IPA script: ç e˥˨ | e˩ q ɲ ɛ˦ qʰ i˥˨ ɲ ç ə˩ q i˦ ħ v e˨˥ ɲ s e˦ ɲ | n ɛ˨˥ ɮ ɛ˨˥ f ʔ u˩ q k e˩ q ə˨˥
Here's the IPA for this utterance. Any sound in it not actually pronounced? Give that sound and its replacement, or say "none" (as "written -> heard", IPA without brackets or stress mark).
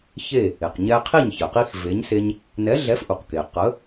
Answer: ħ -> x